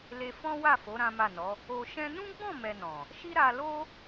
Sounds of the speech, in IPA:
le˧fɔ̃˦wa˦˨fo˨˦ ɾã˦ma˦˨nɔ˨˦ | o˧ʃɛ̃˦ nũ˦ɡ͡bɔ̃˦˨mɛ˨ nɔ̃˨ | ʃi˦ ɾa˧lo˦

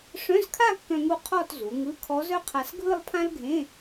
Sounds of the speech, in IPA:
ʂœ̃˧˥˧zkʰa˥˧kːœ̃˧ŋu˧ qʰɔ˥˧tzu˩˧ŋɯ˧˥˧ kʰɔ˧˥zœ˥qʰa˧s ɡʱɯ˥˧lˠpʰã˥lɡʱẽ˧˥˧

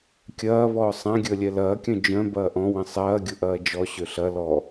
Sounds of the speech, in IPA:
kʲɐː βɔːsˤãɡʲəː lʲɛlɐːkʲœ̃ d͡ʒœ̃ bɐːʔɔ̃wə̃ sˤɐː ɡʲʊʔɐːd͡ʒɔɕø ɬɐ lɔ

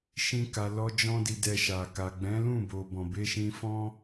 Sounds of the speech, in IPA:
ʃĩ˦ka˧lɔ˦ d͡ʒɔ̃˦di˧dɛ˧ ʃa˨ka˨ ɡ͡bɛ̃˨˦lũ˦˨bo˨ bɔ̃˨be˧ʃĩ˧fɔ̃˦

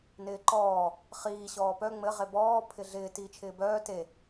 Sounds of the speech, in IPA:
nɪːǃɔː | χiː ɕɔːpœ ŋ͡mɘ ʁebɔː pʰɪɮɪː tiːt͡ʃʰɪːbœː te

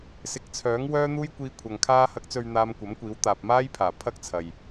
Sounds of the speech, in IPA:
sɪ˨˥k̚t͡sʰœː˨˥ŋ wœː˥n̪uː˥jkʷiː˧kʷʰɐ˨ŋ kʰaː˧hɐ˨˥k̚t͡sɵ˨ɥ n̪aː˧mkʷɐ˨˥mkʷiː˨˥w t̪aː˨p̚maː˥jpʰaː˨˩ pʰɐ˥k̚t͡sʰɐ˨j

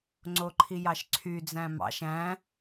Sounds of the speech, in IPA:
ŋ͡ǀoǃʰijɑʃǀʰy d͡zæ̃mɑ̰ʃ æ̃

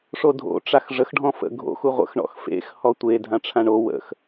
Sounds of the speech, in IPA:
ʂodʱo̰ ʈ͡ʂaxʐəx ɖʱɔ̃fə̰ ɡʱo̰x uʁʷə̰x ɳɔ̰xfḛx hɔtʷe dʱãʈ͡ʂʰãɳo wə̰x

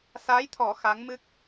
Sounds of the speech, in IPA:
sa˧˥jt̪ʰɔ˨˩˦ xa˧˥ŋmɨ˦˥k̚

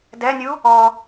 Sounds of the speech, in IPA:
dɛnʲu | ɔ

